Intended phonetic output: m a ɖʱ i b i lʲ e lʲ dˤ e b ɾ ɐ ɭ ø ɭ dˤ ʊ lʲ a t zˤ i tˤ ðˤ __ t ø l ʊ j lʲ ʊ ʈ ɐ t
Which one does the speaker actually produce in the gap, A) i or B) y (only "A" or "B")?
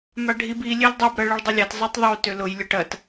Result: B